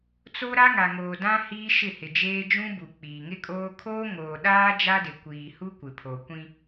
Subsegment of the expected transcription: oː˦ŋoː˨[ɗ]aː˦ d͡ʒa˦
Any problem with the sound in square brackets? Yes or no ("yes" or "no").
no